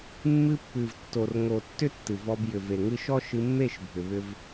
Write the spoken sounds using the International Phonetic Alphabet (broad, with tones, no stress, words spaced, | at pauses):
mːɨ˧pːɨ˨vtːo˨r ŋo˨ tːʏ˦tːɨ˨vɔ˧b jʏ˨ve˨ŋɨ˧ʃɔ˦ ʃɨ˧mːe˦˨ʃ bʱʏ˨βʏ˧v